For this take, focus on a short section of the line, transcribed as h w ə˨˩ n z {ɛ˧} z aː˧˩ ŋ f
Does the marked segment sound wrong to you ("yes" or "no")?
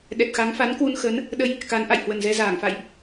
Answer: no